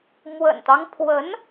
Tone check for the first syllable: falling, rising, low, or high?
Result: low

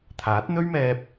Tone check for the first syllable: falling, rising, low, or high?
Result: rising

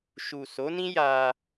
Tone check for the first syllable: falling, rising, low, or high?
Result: low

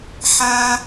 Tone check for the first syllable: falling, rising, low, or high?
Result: high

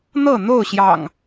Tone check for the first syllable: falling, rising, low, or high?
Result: falling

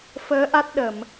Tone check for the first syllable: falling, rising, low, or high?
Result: rising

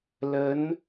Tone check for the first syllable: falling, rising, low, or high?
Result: rising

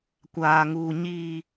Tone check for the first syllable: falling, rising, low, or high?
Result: low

